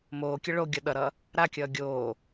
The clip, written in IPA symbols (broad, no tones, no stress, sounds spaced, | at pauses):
m oː kʲ ə ɭ o ɡʲ ʌ ɗ ʌ ɾ ʌ | ɾ a kʲ ʌː ɡʲ oː